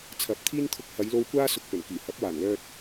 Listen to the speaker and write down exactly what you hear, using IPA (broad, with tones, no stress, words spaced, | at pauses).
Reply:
t͡sʰɐ˨˥p̚t̪ʰiː˥nt̪ʰʊ˧k̚ hɐ˨˧jlo˧wkʷaː˥ sʊ˧k̚pɵ˨˩nkiː˨˩ hɐ˨˥p̚waː˨˩nlœː˧t̚